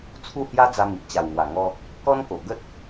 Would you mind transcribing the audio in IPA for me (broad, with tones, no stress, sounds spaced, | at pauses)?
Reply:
t͡sʰ u˥˧ h j a˦ d͡z a˧ m i˨ ʔ t͡ɕ a˨˩ w ŋ w a˨˩ ŋ ɔ˧ | k ɔ˦ n k o˨˩ ɡ ə˦ t̚